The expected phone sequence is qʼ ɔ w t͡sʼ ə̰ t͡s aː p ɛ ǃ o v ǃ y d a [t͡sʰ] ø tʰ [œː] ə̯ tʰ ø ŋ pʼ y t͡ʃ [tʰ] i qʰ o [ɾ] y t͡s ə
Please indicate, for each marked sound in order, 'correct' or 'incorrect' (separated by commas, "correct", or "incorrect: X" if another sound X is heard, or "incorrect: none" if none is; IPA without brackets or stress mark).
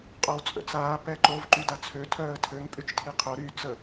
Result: correct, correct, correct, correct